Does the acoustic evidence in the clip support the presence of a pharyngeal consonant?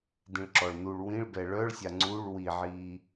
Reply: yes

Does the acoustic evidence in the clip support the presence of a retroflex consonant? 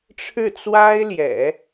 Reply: yes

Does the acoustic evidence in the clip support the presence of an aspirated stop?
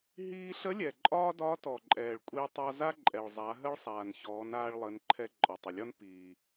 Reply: yes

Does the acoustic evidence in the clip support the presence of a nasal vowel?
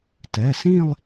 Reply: yes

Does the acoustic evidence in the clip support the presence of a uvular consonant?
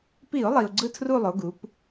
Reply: no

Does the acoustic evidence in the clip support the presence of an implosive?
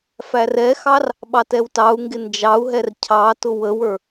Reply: yes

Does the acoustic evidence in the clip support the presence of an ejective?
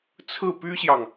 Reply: no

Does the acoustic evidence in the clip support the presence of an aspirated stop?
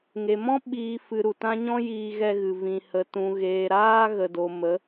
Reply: no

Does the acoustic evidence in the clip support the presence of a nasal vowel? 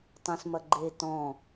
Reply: yes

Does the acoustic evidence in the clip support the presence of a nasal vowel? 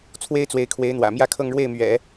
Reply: no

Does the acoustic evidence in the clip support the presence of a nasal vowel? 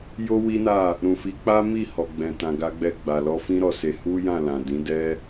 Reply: yes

